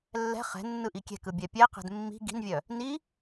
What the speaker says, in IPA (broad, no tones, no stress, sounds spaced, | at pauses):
lː ɛ̤ χ ɛ̤ nː ɯ ʔ i kʲ ɛ̤ k ɯ bʲ ɛ pʲ ɛ q ɛ̤ d mː i̤ ɡ i̤ n vʲ œ | n i